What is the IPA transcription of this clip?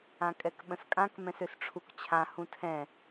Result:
ãkʼɛkɓə̃skʼãk mɛ̃søsʈ͡ʂʰukt͡ɕʰã hũtʰɛ̃

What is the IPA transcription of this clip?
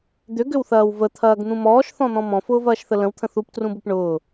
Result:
d̪ʏɡʏwθɐːw vət̪ʰɐːɡn̪ũ mɔːʃθɔ̃n̪ɔ̃ mɔ̃fʊːvɐːʃθə lə̃wt̪ʰə̃ θuptrũbop ɳʊː

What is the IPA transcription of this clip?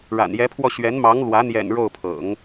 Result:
ɻa̰˨˩njɛ˧˥pʰwɔ˧ ɕɥɛ˧˥n mɑ˧˥ŋlwä˧˥ n̪jɛ̰˨˩n ɻo˥˩ʊ̯pʰɤ̰˨˩˦ŋ

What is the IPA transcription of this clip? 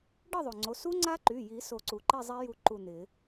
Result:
ɖɪ˥˨ðˤo˩ŋ͡ǀo˩˧˩ su˦˥ŋ͡ǀa˦˥ǃy˩˧˩ji˨˩˦ so˨˩˦ǀu˩ǃi˥˨zˤi˦˥ ju˥˨ ǃu˥˨n̪ɪ˨˩˦

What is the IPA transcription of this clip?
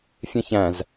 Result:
fʲɛ̃çæ̃z

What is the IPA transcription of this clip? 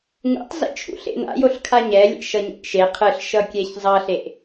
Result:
ŋṵtˤ zḛt͡ʃʰṵɬḛna̰ joɬkʰaɲɛlʲḛ ʃʌɲḛʔʃe qʰɯɬʃʌkʲɛç zˤʌɬeʔ

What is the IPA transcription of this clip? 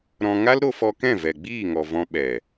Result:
ɾɔ̃˧ ŋa˦lɾo˧fɔ˧kɛ̃˦˨ vɛ˨ɡ͡biː˦˨ŋɔ˨ vɔ̃˧ ɓɛ˨

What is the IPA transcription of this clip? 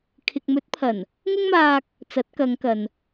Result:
kʰɪ˨k̚mɵ˨˥t̚pʰɐ˨˩n | ŋʊ˥ŋmaː˧k̚ | t͡sɐ˨˥t̚kɐ˨˧ŋkɐ˨n

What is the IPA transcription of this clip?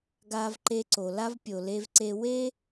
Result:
ɡa˦vǃe˦ǀo˨ la˥v pʲo˨le˦vǀe˦ we˥

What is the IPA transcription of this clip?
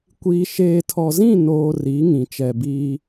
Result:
kʷiː˨ʃeː˨ tʰɔ˨zĩ˦˨ noː˨ ri˨˦ŋĩ˨ t͡ʃɛ˨biː˦

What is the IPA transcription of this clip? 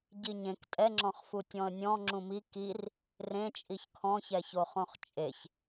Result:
ɟiɲẽk tʼɛŋ͡ǁɔ̃χfu tʲɔ̃ə̯nʲɔ̃ ŋ͡ǁũmi kir | rẽ t͡ʃʼiçkʰɔ̃çɛço χõχt͡ʃʼeç

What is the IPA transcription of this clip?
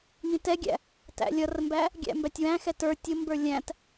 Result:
ŋĩtɛɡʲæ̰ | tæ̰lʲʌrmbæ | ɡʲæ̰mbætʲwæ̃xɛ tə˞ tʲʊmbə˞ lʲæ̃t

